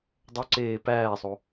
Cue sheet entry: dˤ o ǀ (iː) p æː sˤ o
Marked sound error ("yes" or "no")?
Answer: yes